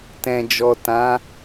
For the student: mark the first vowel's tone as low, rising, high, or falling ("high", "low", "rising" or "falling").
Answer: low